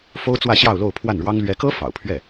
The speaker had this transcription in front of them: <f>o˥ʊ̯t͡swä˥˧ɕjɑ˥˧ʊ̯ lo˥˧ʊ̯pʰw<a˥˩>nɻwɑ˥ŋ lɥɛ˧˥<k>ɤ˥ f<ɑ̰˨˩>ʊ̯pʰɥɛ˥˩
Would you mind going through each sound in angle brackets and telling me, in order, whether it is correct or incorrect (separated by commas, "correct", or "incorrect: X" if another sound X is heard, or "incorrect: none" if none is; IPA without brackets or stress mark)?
correct, correct, correct, correct